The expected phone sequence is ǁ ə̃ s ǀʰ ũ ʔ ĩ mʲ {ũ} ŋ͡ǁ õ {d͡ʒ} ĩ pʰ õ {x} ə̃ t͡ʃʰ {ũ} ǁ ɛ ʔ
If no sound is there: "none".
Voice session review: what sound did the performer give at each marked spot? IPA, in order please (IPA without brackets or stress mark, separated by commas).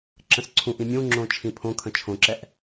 ũ, t͡ʃʰ, kʰ, õ